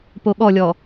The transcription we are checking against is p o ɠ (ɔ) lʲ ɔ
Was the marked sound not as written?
no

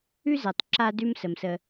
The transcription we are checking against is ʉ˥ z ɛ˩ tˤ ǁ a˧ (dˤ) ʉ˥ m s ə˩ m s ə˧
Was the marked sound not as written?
yes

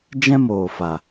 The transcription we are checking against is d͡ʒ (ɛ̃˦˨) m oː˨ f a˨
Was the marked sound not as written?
yes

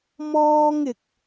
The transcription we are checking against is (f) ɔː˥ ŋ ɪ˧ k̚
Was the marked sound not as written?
yes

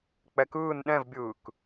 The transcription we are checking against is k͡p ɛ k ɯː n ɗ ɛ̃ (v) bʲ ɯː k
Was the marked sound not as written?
no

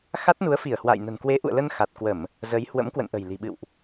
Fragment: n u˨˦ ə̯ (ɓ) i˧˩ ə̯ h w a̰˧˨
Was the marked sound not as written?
yes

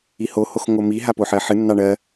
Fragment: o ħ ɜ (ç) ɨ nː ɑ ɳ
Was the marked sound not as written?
yes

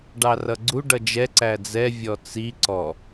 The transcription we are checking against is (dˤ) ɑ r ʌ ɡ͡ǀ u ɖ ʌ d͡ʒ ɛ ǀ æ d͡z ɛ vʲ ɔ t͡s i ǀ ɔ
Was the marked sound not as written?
yes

